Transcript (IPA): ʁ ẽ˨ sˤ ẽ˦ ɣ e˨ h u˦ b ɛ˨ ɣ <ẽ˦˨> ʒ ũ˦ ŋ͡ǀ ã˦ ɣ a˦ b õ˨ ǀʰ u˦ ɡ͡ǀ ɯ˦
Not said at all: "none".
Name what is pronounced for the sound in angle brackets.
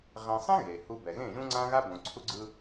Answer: ẽ˦˨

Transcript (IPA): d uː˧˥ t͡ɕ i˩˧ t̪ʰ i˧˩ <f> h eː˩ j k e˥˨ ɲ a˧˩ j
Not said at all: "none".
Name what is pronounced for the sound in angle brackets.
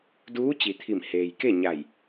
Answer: m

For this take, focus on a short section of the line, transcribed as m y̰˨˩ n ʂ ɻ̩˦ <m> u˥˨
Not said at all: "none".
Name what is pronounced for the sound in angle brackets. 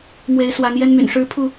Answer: pʰ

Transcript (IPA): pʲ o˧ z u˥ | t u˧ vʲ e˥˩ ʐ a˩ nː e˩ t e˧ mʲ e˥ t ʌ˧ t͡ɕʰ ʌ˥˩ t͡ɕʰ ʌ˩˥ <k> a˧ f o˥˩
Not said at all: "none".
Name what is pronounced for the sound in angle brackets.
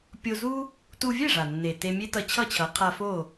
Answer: qʰ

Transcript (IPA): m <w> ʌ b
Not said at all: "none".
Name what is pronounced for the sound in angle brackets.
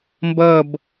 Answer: b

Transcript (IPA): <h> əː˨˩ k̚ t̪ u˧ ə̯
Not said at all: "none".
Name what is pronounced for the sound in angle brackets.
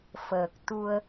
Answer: f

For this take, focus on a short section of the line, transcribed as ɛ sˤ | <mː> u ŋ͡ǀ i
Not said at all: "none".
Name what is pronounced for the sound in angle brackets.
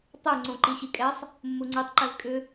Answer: mː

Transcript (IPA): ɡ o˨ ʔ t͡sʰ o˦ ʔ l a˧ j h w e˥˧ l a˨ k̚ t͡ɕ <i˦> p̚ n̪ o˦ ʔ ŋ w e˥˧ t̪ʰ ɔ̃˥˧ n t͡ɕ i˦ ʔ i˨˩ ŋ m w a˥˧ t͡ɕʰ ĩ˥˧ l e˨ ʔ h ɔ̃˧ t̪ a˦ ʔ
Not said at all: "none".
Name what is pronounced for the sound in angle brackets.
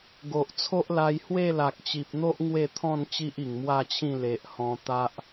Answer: i˨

